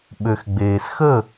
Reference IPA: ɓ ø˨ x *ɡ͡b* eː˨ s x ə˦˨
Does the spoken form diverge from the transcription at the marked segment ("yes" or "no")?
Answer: no